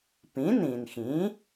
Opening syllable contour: rising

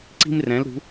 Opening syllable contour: high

